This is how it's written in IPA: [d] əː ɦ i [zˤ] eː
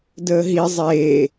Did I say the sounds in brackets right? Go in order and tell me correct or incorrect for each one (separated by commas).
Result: correct, correct